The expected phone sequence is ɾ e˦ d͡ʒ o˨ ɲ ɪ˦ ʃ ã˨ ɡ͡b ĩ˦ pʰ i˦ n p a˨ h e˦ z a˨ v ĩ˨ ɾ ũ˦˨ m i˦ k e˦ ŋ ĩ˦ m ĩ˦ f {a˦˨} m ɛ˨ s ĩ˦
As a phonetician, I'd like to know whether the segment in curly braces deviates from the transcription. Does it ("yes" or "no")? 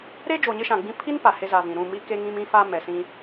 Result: yes